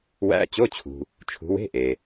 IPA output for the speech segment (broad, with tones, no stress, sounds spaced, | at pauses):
w æ̰˧˥˧ t͡ɕ o˧˥˧ t͡ɕʰ ṳ˨ | t͡ʃʰ ṳ˨˦ w e̤˧˥˧ ʔ e˨